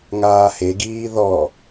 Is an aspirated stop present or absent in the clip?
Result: absent